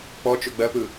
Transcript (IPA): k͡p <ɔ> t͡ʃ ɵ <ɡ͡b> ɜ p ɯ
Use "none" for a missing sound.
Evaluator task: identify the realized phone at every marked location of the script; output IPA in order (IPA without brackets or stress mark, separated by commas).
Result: ɔ, ɡ͡b